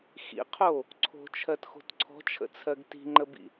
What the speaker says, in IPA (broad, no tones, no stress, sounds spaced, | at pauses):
x ḭ qʰ o | ǀʰ o̤ t͡ʃʰ ɜ t x o̤ t ǀʰ ɔ̤ t͡ʃʰ ə̰ t͡sʰ ɜ ɡ t i̤ ŋ͡ǃ ə b ḭ